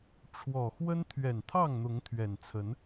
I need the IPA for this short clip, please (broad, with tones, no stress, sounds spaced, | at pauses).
ʈ͡ʂʰ w ɔ˨˩ x w ə˦ n t̪ʰ ɥ ɛ˨˩ n t̪ʰ ɑ˥˨ ŋ n̪ ʊ˨˦ ŋ t̪ʰ ɥ ɛ˨˩ n t͡sʰ ə˨˦ n